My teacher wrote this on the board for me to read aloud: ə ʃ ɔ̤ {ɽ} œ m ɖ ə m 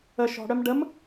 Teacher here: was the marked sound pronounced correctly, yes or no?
yes